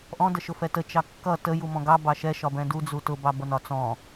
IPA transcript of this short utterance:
ʔ ɔ̃ d ə ʃ ʊ f ɛ t ə t͡ʃ ɑ kː ʌ t ə j u m ɔ̃ ɡ ɑ b ɑ ʃ ɛ ʃ ɒ b ɛ̃ d u d͡z u t ʊ b ɑ b ʌ n ɒ t͡s ɔ̃

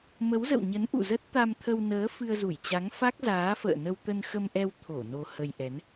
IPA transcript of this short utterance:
m ə˨˦ w z ə̰˧˨ w ɲ ə˨˦ n ʔ ṵ˧˨ z ə˦˥ t̚ t̪ a˧ m t̪ʰ ə˧ w n əː˨˦ f ɨ˧ ə̯ z u˧˩ j t͡ɕ a˨˦ ŋ f a˦˥ k̚ z aː˨˦ f ə̰ː˧˨ n ə˧ w t̪ ə˧ n x ə˧ m ʔ ɛ˧ w t̪ʰ o˧˩ n o˧ h ə˧ j ʔ ɛ˨˦ n

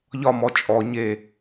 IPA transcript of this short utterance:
ʎ ɒ m ɔ t͡ʃʼ ɔ ɲ e

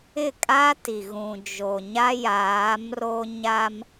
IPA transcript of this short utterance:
ɪ˦˨ kʼ a˦ t i˨ ɣ ũ˨ d͡ʒ o˨ ɲ a˦ j aː˨˦ m r o˦ ɲ a˦ m

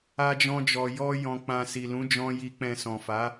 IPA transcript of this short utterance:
a˦ d͡ʒ ɔ̃˦ d͡ʒ ɔ˧ j ɔ˦ j ɔ̃˧ k͡p ã˧ s i˨ l ũ˨˦ d͡ʒ ɔ̃˧ j i˨ k͡p ɛ̃˨ s ɔ̃˨ f a˨˦

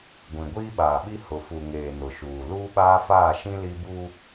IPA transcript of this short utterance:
ɡʷ ĩ˨ ɡʷ iː˦ ɓ aː˨ ɓ i˦ h ʊ˨ f u˨ ŋ eː˨ n ʊ˨ ʃ uː˨ l uː˦ ɓ aː˦ f aː˦˨ ʃ ĩ˦ l i˦ b u˦

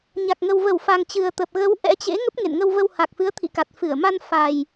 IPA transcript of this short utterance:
ɲ a˨˩ k̚ ŋ ə˨˩ w v ə˧˩ w f a˨˩ ŋ t͡ɕ ɨ˨˩ ə̯ t̪ ə˨˩ p̚ ɣ ə˨˦ w ʔ ɛ̰˧˥ t͡ɕ ḛ˧˥ ŋ ə˦˥ p̚ ŋ ḛ˧˨ n ŋ ə˧ w v ə˧ w h a˨˩ k̚ f ɨ˨˦ ə̯ t̪ʰ ḭ˧˨ k a˨˩ t̚ f ɨ˧˩ ə̯ m a˧ n f a˨˩ j

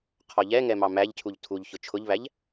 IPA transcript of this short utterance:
qʰ ɔ ʎ ɛ ŋ ɛ m ɑ m æ ʎ cʰ u ʎ tʰ u ʎ ç ʊ t͡ʃʰ ʊ ʎ β æ ʎ

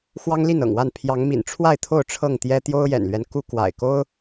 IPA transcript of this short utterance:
x w ɑ˦ ŋ l i˥˨ n ɤ̰˨˩ ŋ w a˥˨ n pʰ j ɑ˨˦ ŋ m ḭ˨˩ n ʈ͡ʂʰ w a˥˨ ɪ̯ t̪ʰ o˥˨ ʊ̯ ʈ͡ʂʰ ɤ˥˨ ŋ t̪ j ɛ˦ t̪ j o˦ ʊ̯ j ɛ̰˨˩ n l ɥ ɛ˦ n k u˦ k w a̰˨˩ ɪ̯ k o˦ ʊ̯

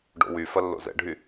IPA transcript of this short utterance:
ɖ o̰ w y f ɐ lː o̰ z ɛ̰ ɖʱ y

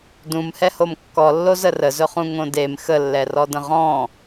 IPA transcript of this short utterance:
d ũ m h ɛ h o m kː ɔ lː o z ə r ə z ɵ χ ũ ŋ õ d e m x ə lː ɛ r ɔ d ə̃ ʁ ɔ̃

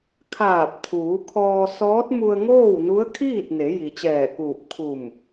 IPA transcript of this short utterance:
kʰ aː˧˩ p̚ t̪ʰ uː˩˧ kʰ ɔː˧ s ɔː˧˥ t̚ m u˧ ə̯ ŋ oː˥˨ w n u˧˥ ə̯ kʰ iː˥˨ t̚ n e˩˧ j i˩ t͡ɕ ɛː˧˩ k uː˧˩ p̚ kʰ u˧˩ m

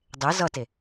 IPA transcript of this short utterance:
dˤ e z ʌ t e

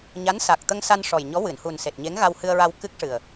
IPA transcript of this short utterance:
ɲ a˧˥ n s a˨˩ k̚ t̪ ə˧ ŋ s a˧ n ʂ ɔ˨˩ j ɲ ɔ˧˥ w ɨ˨˩˨ n h u˨˩ n s e˨˩ t̚ ɲ e˧˥ ŋ ɣ a˧ w h ɨ˧ ə̯ ɹ a˧ w k ɨ˦˥ k̚ ʂ ɨ˨˩ ə̯

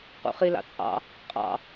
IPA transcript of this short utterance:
q ṵ χ i l ɑ̰ t͡sʼ ɑ̰ | qʼ ɑ̰

